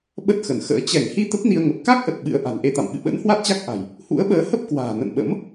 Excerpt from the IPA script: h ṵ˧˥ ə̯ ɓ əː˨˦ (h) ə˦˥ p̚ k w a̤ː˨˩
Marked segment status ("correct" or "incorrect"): correct